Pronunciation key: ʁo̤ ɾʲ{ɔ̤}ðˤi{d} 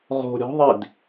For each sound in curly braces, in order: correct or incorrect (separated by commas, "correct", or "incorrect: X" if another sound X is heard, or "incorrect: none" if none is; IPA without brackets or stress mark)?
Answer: correct, correct